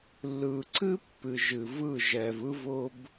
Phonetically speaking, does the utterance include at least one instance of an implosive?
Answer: no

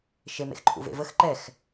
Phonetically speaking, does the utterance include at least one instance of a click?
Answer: yes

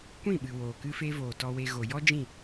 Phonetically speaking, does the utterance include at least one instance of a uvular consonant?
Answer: no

